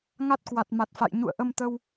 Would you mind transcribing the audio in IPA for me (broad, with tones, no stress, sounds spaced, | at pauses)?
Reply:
ŋ a˦˥ t̚ k w a˨˩ t̚ m a˨˩ t̚ f a̰˧˨ j ɲ ṵ˧˨ ə̯ ʔ ə˧ m t̪ ə˧ w